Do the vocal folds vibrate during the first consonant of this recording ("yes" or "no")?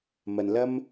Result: yes